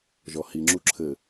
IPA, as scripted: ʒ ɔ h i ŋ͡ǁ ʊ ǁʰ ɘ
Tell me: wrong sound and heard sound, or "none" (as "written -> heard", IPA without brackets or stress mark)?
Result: ʊ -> u